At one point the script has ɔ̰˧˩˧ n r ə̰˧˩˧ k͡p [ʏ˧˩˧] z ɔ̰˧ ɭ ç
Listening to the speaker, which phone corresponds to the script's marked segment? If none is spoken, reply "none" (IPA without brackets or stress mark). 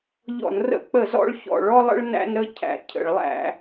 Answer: ə˧˩˧